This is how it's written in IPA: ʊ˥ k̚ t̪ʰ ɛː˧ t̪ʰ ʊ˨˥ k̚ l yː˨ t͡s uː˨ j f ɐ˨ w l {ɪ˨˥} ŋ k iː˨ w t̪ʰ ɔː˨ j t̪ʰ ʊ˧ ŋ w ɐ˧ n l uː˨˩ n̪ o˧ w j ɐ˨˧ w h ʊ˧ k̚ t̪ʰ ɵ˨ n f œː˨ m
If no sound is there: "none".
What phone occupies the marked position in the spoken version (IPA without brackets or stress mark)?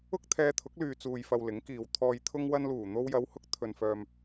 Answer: ɪ˨˥